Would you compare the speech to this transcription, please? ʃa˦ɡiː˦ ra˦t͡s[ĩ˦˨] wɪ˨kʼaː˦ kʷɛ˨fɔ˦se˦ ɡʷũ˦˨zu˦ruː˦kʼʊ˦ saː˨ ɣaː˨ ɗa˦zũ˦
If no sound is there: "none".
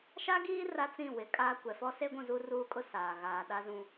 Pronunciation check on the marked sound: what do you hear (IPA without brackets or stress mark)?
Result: ĩ˦˨